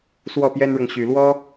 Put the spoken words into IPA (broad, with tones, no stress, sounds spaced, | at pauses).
s w ɔ˥˩ p j ɛ˥ n ɻ ɤ˨ ŋ ɕ y˨˩ l w ɔ˥